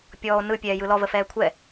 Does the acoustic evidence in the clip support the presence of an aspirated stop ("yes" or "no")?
yes